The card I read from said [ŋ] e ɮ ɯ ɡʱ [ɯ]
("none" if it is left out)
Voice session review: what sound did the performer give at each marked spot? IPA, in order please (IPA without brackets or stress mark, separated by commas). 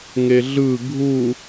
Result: ŋ, u